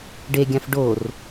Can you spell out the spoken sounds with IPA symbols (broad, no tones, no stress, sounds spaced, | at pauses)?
ɖ e ɡʲ ã f ɖ o r